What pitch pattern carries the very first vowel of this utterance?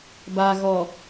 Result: low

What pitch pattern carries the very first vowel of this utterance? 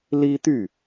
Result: high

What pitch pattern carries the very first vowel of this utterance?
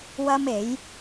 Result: high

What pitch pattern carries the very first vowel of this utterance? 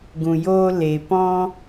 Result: low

